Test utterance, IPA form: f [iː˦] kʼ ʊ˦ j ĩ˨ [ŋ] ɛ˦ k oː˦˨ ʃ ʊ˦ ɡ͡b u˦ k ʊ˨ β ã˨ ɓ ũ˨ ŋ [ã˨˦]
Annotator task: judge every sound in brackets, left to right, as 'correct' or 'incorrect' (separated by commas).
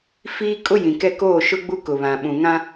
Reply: correct, incorrect, incorrect